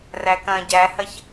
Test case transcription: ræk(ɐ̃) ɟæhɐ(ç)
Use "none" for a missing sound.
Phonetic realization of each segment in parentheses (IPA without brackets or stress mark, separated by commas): ɐ̃, ç